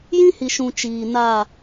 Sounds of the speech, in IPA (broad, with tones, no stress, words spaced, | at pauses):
jĩ˦hi˨ʃũ˨ t͡ʃiː˨na˦˨